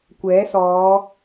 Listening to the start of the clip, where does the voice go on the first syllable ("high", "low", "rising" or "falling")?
rising